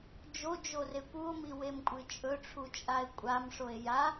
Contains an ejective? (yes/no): yes